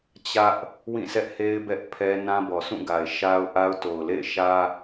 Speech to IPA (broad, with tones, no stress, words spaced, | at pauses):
t͡ɕä˦ʔ | wĩ˦˨sɛ˦ʔhe˦ɪ̯ bɛ˦ʔpʰɛ˦ nã˦bɔ˨sũ˦˨ɡa˨ɪ̯ ʃa˦ʊ̯ʔa˦ʊ̯to˨ʊ̯ lḛ˦˨ɪ̯ʃä˦